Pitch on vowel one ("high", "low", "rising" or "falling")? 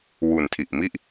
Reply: low